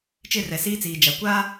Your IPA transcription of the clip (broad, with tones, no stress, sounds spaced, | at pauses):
t͡ʃ ɪ˦˨ r ɛ˨ s iː˦ t͡s iː˨ d͡ʒ a˨ kʷ a˦